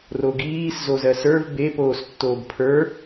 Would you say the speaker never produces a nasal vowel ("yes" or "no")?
yes